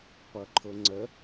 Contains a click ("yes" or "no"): yes